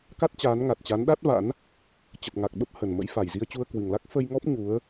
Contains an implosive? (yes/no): yes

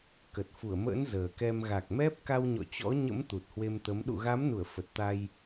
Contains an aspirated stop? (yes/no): no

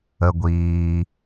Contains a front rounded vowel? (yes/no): no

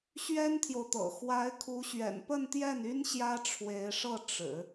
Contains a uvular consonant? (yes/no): no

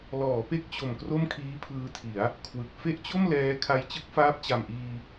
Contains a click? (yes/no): no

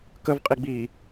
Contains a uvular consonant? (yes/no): yes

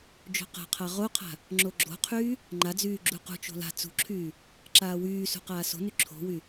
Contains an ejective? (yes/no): no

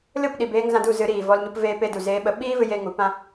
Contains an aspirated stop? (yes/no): no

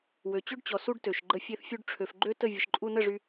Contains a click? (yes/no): yes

